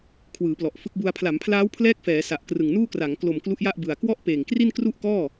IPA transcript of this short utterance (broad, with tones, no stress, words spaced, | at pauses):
kʰwɯː˩˦plɔ˨˩ʔfɯ˦˥k̚bu˧a̯ pʰla˩˦mpʰlaː˦˥wpʰlɛː˦˥k̚ fɛː˩˦sa˨˩ʔ krɯ˨˩ŋnuː˥˩kra˩˦ŋ klo˨˩m klu˦˥ʔja˥˩ʔbɯ˨˩a̯ kwɔ˥˩ʔpeː˨˩ŋkri˥˩n kru˥˩ʔkɔː˥˩